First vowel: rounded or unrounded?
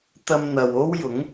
unrounded